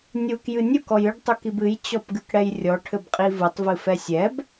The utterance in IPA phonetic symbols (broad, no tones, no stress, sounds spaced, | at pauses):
nʲ u k j ɨ nʲ u k ɔ j ɨ ɖ tˤ u k i b ɨ j t͡ɕ ɔ p ɡ ɨ k ɽ ɛ j rʲ ɔ ʈʰ ɘ b qʼ i v ɨ tˤ v ɨ f ɛ sʲ ɛ b